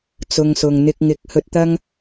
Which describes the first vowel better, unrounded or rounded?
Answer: rounded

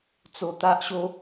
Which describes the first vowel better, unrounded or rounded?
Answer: rounded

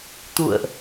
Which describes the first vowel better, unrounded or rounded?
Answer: rounded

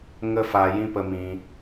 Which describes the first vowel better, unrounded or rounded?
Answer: unrounded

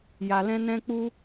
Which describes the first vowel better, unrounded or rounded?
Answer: unrounded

